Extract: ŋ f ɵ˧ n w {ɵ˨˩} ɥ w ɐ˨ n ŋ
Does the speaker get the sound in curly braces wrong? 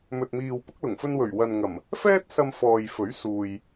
no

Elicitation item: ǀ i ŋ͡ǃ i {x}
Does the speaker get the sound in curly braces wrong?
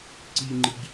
yes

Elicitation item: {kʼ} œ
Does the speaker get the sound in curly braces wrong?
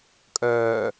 no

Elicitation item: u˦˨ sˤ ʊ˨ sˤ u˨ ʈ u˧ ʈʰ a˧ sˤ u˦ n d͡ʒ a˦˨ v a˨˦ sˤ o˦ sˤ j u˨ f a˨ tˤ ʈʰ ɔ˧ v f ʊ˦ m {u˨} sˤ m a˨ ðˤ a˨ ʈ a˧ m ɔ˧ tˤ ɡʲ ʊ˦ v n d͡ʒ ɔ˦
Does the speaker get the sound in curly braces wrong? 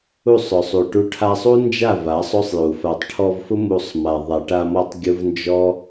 yes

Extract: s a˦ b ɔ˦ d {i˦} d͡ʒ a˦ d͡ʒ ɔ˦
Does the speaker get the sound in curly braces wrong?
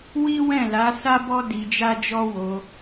yes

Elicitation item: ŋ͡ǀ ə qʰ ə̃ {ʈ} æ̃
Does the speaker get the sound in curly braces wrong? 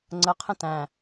yes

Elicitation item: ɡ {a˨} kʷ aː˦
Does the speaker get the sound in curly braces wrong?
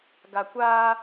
no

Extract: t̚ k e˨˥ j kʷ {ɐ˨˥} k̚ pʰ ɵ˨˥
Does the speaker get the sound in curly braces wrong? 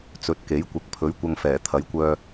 no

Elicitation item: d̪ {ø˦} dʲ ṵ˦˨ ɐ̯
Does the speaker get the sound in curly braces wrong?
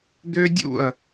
no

